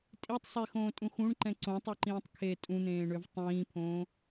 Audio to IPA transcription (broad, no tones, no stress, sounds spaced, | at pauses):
tʼ i tˤ sˤ e x õː tʼ ũ x ũ ɳ ǃ ɛ̃ ǀ õ tˤ o ǃ ĩː tˤ kʰ e tʼ ũ n̪ ẽː ɳ ø v tˤ ĩː pʰ õː